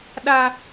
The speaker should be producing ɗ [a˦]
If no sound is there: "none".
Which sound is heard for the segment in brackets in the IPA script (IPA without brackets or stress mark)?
a˦